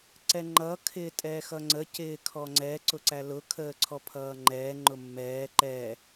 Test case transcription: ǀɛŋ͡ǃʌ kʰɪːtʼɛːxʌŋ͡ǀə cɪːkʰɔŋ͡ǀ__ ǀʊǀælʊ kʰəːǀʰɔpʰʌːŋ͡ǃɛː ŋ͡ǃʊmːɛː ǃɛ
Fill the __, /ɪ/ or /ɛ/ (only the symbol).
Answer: ɛ